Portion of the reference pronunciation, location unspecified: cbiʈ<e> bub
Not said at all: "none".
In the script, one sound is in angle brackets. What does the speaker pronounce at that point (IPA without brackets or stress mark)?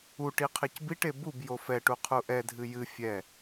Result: e